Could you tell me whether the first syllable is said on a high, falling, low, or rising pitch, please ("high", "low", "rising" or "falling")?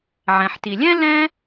low